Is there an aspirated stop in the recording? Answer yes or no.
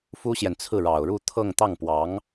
yes